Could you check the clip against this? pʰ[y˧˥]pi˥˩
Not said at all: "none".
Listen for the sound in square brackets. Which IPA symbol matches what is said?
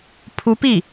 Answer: u˧˥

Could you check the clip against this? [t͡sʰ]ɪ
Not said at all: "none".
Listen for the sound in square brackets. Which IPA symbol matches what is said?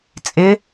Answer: t͡sʼ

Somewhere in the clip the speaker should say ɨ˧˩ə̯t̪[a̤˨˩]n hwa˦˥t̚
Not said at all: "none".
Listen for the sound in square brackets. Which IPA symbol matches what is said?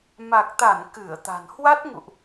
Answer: a̤˨˩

